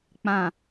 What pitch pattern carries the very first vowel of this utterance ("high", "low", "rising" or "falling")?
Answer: low